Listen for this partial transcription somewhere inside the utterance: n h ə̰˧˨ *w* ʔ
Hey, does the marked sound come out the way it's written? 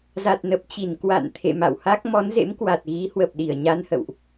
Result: yes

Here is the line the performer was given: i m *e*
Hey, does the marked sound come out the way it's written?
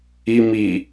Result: no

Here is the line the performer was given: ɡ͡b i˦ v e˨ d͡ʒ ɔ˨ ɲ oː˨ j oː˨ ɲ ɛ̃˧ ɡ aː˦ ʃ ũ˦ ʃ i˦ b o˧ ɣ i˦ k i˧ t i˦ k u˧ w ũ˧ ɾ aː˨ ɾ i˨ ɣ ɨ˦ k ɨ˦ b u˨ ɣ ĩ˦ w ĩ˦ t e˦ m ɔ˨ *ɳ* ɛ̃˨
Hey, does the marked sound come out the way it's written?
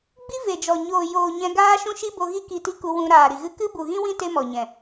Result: no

